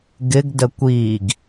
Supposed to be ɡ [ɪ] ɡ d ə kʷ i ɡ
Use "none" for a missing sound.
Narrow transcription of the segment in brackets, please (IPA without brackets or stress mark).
ɪ